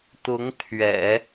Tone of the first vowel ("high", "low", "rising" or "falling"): rising